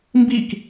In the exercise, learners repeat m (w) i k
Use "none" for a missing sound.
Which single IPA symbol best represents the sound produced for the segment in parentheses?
b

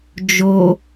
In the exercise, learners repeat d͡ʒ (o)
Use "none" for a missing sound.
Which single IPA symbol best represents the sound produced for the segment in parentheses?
o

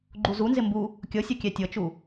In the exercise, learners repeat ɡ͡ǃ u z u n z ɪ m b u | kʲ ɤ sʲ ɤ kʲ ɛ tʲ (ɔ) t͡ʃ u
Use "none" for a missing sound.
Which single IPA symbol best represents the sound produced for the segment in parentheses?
ɤ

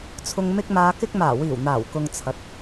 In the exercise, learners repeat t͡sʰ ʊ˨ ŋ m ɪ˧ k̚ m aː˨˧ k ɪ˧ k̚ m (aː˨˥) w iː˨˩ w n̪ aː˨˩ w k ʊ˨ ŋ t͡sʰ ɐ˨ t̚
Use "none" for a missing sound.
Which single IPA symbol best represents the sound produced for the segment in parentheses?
aː˨˩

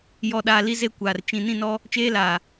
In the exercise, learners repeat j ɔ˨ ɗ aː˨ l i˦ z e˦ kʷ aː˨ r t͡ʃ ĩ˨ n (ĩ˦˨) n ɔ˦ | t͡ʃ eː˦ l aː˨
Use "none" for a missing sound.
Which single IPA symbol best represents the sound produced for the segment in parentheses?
ĩ˦˨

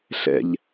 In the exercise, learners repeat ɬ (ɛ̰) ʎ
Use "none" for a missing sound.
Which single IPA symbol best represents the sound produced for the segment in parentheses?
ɛ̰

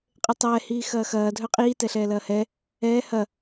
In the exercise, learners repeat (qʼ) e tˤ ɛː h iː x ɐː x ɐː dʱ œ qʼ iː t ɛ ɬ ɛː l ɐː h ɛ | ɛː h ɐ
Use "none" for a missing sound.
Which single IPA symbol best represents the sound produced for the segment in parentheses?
qʼ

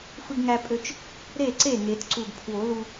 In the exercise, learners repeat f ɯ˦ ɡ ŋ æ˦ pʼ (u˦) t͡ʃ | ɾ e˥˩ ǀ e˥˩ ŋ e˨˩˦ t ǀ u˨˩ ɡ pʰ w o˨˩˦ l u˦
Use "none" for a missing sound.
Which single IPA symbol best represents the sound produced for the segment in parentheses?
ø˦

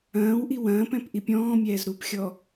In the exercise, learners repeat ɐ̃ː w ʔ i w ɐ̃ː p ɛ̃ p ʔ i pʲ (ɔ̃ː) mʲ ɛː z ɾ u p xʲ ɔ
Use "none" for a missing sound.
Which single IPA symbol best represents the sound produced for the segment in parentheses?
ɔ̃ː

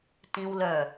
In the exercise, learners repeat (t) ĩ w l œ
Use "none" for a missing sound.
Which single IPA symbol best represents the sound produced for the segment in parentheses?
t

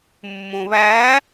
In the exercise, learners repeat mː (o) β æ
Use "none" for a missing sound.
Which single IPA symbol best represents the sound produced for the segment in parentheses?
õ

